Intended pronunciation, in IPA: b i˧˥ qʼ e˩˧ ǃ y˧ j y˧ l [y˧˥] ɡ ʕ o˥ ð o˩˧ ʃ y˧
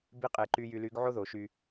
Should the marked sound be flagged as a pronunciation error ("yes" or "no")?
no